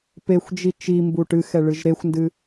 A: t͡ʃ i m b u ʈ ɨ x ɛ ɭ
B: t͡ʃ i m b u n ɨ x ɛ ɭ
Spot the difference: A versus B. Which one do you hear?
A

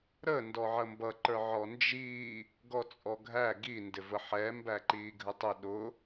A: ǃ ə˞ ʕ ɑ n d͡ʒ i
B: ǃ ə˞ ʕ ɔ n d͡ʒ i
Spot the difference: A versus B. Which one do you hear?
B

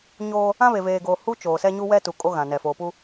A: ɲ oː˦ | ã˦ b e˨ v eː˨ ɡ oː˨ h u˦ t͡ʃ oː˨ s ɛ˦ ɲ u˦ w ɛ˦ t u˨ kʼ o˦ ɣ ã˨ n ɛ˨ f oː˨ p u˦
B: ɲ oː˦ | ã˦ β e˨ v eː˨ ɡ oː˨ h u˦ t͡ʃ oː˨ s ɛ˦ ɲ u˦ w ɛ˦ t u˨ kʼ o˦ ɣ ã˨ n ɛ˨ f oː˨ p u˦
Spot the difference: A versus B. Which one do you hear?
B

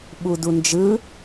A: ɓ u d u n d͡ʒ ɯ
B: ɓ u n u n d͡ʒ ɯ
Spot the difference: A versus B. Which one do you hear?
A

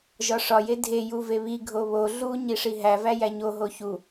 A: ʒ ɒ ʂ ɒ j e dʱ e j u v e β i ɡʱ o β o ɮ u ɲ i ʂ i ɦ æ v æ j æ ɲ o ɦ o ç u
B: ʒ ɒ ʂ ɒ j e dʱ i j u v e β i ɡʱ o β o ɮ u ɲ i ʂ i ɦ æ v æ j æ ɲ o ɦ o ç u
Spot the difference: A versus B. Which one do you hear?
A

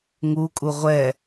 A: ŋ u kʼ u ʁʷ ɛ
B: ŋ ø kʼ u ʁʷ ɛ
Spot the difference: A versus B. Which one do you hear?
A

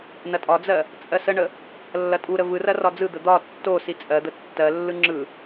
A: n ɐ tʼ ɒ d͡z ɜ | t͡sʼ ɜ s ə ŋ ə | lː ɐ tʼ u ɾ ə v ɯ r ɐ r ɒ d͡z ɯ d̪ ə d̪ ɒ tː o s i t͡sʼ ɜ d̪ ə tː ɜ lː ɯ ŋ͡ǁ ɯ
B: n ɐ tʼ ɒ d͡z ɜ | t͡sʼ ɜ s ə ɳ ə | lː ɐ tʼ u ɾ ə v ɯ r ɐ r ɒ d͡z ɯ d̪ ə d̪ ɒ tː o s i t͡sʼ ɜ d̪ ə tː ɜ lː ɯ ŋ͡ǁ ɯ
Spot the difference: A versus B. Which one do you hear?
B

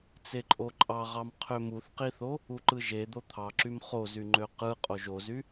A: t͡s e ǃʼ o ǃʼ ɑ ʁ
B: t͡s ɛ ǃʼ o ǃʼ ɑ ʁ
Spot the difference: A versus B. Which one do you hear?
A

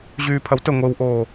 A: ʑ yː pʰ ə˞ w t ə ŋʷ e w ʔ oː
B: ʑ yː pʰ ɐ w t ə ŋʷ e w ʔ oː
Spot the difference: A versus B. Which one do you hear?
B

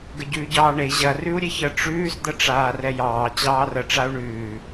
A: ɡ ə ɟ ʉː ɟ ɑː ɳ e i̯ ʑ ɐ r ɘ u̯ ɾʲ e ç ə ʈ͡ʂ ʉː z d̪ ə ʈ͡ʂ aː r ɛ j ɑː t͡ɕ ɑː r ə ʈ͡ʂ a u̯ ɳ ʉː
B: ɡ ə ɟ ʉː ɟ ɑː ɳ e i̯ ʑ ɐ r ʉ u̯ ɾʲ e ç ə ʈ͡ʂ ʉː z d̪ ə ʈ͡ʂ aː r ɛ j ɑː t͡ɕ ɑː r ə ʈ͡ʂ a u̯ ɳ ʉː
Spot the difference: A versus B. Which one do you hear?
B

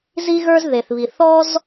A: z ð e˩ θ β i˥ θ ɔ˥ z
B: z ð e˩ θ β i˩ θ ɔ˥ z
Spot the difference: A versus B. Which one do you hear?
B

